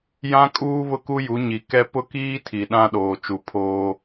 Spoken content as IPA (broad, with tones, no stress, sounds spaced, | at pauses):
j ã˦ kʼ uː˦ β ʊ˦ k u˦ j u˨˦ ɲ i˨ k ɛ˦ p ʊ˦ k iː˦ tʰ i˨ ɗ ã˦ ɗ oː˨ t͡ʃ u˨ pʰ oː˦